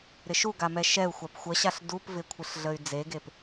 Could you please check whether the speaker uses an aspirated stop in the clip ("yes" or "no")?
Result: yes